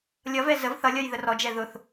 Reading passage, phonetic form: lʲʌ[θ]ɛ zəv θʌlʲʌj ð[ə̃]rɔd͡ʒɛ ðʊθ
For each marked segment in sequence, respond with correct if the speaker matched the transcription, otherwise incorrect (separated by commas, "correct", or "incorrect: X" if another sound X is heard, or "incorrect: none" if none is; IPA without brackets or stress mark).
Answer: incorrect: v, incorrect: ə